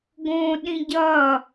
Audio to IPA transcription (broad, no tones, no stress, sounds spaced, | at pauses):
ɡ õ ɗ ĩ ɟ ʌ